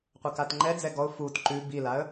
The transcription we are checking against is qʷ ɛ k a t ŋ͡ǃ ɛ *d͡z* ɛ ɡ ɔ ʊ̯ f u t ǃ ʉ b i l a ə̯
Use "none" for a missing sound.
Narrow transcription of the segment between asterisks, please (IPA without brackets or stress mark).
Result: d͡z